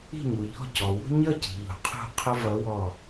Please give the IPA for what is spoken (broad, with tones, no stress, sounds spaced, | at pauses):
i̤˥˨ ɲ u˩ ʎ ɔ̤˥˨ c ɔ˩ w ṳ˥ ɲ ʌ˥˨ c i̤˩ ʎ ṳ˩ qʰ ṳ˧˩ qʰ ʊ˥ v ʌ˧˥ w ɔ˧˩